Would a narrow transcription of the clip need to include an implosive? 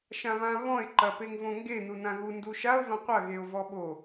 yes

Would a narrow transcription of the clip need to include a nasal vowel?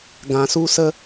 yes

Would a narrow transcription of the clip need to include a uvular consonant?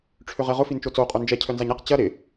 yes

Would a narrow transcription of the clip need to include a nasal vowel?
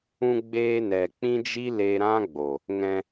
yes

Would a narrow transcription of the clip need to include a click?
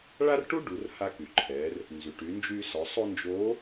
yes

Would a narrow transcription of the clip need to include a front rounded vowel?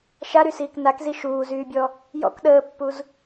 yes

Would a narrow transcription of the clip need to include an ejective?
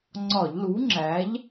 no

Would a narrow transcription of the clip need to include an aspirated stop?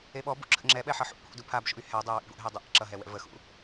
yes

